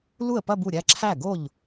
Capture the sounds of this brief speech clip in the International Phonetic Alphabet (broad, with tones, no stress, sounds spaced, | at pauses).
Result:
l u˥˩ ə̯ p ɐ˥˧ b u˥˩ ɾʲ æ˥˧ ǁʰ æ˥˩ ɡ o˥˩ ʎ